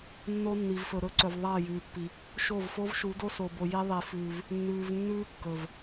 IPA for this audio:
nː o˦ nː i˨ v f ɵ˨ ɾ ɵ˦ ǀ ɵ˨ v ðˤ ɐː˦˨ j ʉː˨ pː i˨ | ʃ o˦˨ v f o˦ v ʃ u˨˦ d o˦ s o˨ b o˨ j i˦ ðˤ i˨ f ʉː˨ v | nː ʉː˨ v nː ʉː˦ kː ɵ˨ v

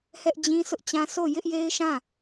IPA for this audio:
h ɛ˦ ʔ d͡ʑ ĩ˦ s ʊ˦ ʔ t͡ɕ ã˦ sʰ o˦˨ j ɪ˦ ʔ j e˦ ɪ̯ ʃ ã˦˨

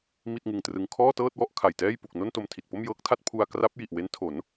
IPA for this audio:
m i˥˩ t̚ ŋ ɯ˧ ŋ t r ɯ˧ ŋ kʰ ɔː˥˩ t ɤː˥˩ t̚ w ɔ˥˩ ʔ kʰ a˨˩ j t ɛː˥˩ j p u˨˩ k̚ n o˥˩ n t o˧ m tʰ i˨˩ t̚ p o˥˩ m j ɤː˦˥ k̚ tʰ a˥˩ t̚ pʰ u˧ a̯ k r a˦˥ p̚ j i˨˩ ʔ w e˦˥ n tʰ o˩˦ n

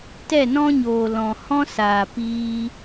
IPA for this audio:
t ɛ˦˨ n ɔ̃˦ ɲ oː˨ l ɔ̃˨ h ɔ̃˦ s aː˨ p iː˧

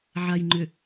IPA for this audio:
ʕ a˨ j ŋ͡ǃ ʏ˨

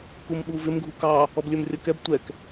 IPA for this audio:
k u m ɓ u v ɪ m ɡʱ u k ɑ | ɔ b lʲ ə˞ m rʲ ʌ k ɛ b tʷ ɛ k

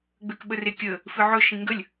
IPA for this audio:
ɡ͡b ø k ɓ ə r e kʲ ə | f ɨ ʕ ɵ ʃ ĩ ŋ ɡ ə lʲ

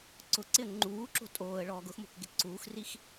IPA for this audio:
ǀ ʊ ǀ ɪ ə̯ ŋ͡ǃ uː ǁ o̤ tʼ oː ə̯ ɭ ɔː ɡ ʊ x m o̤ k ɡ ɪ ǀ uː x r i x

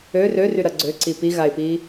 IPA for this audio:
ø r ø r y ɾ ɐ ɡ͡ǀ ø ǀ i p i ɣ a ɪ̯ p i

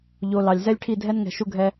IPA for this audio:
ʎ o˨ l ɑ˨ lʲ z ɛ˦ lʲ ʈʰ i˦˨ dʱ ɛ˦ n ŋ ɛ̤˨ ʃ u˦ ɡʱ ɛ˦

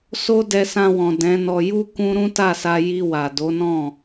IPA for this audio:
s o˦ d ɛ˧ s ã˧ w ɔ̃˨ d ɛ̃˨˦ n ɔ˧ j u˦ k ũ˦ ɾ ũ˦ t a˦˨ s a˧ j i˧ w a˨ d o˨˦ n ɔ̃˦˨

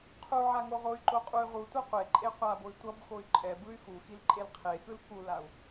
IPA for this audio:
qʰ u ʕ a ŋ o ʁ o y̯ ǃ o qʼ u y̯ ʁ u tʷ ɛ qʷ e ǃʼ e qʷ a b o y̯ tʷ ʌ b x o y̯ ǃʼ ɛ b ɯ y̯ x u x i l ǃʼ e l qʰ e x ɯ l k u l a u̯

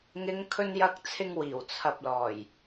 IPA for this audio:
ŋ ɪ˨˧ ŋ kʰ ɵ˧ n j ɐ˧ k̚ t͡sʰ ɪ˧ ŋ w iː˨˩ w t͡sʰ ɐ˧ p̚ l ɔː˨˩ j

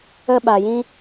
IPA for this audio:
ə˦ ɓ a˨ j ĩ˦

